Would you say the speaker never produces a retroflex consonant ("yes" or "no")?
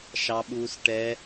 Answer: no